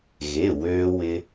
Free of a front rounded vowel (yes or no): no